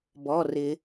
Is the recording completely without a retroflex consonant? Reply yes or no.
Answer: yes